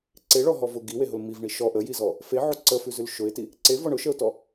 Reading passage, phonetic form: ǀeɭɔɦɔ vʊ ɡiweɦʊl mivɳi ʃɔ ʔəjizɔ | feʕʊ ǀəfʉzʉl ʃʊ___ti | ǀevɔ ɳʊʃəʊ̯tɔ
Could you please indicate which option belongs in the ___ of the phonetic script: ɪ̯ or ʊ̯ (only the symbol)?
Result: ɪ̯